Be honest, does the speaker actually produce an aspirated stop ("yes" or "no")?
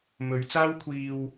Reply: yes